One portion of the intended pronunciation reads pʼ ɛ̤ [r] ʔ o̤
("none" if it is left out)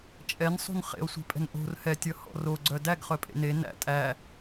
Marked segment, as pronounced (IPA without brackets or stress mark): n